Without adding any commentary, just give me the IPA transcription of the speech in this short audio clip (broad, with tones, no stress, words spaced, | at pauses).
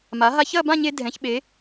ma˩˧ ɦa˧çɐ˥˧bã˥˧ɲe˧ dʱɛ̃˩˧çɓe˩˧